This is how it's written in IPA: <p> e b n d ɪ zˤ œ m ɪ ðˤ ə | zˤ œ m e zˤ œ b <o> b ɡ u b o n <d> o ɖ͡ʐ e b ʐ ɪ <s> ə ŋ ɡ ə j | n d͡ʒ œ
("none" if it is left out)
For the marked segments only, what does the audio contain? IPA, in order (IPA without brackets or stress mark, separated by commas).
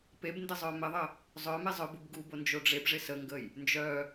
p, u, d͡ʒ, s